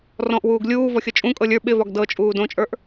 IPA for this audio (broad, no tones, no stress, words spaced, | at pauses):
rɔ̃ʔwuːɡ lʲuːvɔxʲɤ t͡ʃʼũkʼɤ lʲə˞ ɓɪvɒɡ dɤt͡ʃʼuː dõt͡ʃʼə˞ʔ